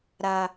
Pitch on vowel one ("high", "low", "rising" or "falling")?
low